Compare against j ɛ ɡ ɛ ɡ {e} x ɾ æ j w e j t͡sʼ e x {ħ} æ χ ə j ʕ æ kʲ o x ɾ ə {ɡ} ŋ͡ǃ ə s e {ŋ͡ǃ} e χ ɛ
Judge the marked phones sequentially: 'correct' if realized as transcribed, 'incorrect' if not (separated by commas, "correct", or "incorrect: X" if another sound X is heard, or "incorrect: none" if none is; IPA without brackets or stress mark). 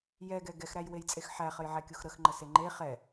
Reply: incorrect: ɛ, correct, incorrect: x, correct